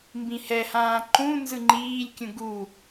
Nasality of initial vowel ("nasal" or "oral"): nasal